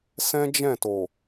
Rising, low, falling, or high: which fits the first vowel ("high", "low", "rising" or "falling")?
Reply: high